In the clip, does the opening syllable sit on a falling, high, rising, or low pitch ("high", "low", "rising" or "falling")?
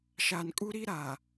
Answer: low